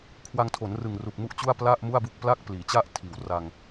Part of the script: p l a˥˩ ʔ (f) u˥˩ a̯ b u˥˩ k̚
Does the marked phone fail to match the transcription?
yes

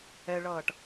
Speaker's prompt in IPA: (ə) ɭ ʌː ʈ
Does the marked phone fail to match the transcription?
yes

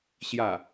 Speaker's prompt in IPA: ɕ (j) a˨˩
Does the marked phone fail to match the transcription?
no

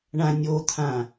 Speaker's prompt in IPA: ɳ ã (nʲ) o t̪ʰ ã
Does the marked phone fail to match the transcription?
no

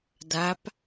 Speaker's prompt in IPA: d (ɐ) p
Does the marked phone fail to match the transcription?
yes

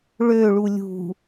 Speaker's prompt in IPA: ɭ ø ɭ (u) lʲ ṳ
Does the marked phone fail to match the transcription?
no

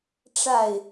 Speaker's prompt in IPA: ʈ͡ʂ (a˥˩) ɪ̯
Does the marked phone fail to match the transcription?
no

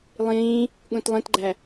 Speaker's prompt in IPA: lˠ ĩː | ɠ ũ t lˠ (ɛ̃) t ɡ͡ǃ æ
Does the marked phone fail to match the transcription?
yes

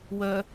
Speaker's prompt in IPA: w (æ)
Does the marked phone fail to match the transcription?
yes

